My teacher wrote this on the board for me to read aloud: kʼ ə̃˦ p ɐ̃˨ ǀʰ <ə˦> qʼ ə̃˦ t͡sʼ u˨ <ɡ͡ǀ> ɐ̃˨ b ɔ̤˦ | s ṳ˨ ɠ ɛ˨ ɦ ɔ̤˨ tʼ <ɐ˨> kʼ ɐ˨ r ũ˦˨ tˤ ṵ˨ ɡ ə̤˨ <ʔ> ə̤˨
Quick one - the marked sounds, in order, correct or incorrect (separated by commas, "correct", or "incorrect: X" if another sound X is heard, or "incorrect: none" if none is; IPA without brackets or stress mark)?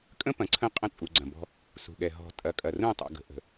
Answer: incorrect: ə̃˦, correct, correct, correct